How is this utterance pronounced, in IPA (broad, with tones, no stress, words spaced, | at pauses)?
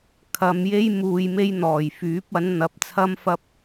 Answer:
kʰɐ˨˧m je˥j muː˧j me˥jn̪ɔː˨˩j fyː˨˥p̚ɐ˨˥nn̪ɐ˨˥p̚t͡sʰɐ˥m fɐ˥p̚